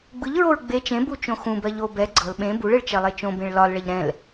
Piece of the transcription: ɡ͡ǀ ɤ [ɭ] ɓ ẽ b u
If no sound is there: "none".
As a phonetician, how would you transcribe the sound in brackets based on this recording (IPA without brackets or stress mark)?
l